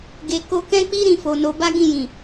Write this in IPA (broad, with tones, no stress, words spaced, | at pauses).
ɡe˨ko˧kɛ̃˦k͡pi˦ ɾĩ˧fo˨no˨˦ ba˦ɡĩ˦˨jĩ˨